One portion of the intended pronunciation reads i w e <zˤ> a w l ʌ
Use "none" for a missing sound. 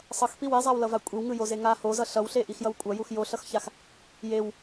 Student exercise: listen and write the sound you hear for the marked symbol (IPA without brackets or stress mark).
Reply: zˤ